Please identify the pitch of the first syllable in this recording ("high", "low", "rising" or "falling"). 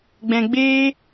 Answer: low